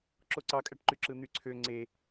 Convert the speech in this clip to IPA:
ǁ o ǀ ɑ kʼ æ ʈ ǃ y ǁ ɯ n̪ y ǀʰ ø ŋ͡ǀ e

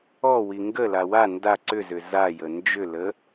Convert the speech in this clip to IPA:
ɔ w i ŋ ɡ ə l a w a n d a ǀ ʏ z ʏ z a j ə n d͡ʒ ʏ l ə

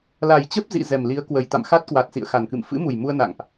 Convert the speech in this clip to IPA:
l a˨˩ j t͡ɕ ə˦˥ p̚ z ḭ˧˨ z ɛ˨˩ m l i˨˦ ə̯ k w ə˨˩ j t̪ a̰˧˨ m x a˦˥ t̚ k w a˨˩ t̚ s ḭ˧˨ ə̯ x a˨˩ n k ɨ̰˧˨ m f ɨ̰˧˥ m u˨˩ j m u˧ ə̯ n a̰˧˨ ŋ ʔ

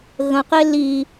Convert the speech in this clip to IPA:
ɣ ə̃ q e l i

